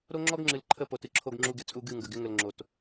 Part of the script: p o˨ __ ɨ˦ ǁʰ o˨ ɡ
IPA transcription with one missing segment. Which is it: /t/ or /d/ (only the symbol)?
t